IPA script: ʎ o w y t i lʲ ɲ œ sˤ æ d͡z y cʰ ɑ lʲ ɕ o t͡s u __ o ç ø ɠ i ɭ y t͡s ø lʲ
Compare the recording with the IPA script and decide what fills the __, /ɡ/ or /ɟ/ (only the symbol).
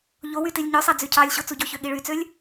ɟ